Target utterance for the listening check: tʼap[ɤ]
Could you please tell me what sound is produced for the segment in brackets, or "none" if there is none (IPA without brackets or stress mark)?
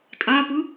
ɯ